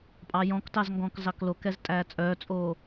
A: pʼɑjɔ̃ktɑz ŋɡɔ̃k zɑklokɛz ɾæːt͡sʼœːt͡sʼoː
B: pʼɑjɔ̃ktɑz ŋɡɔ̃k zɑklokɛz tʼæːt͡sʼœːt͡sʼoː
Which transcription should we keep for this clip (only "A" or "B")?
B